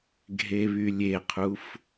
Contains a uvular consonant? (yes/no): yes